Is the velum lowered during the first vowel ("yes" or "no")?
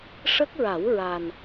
no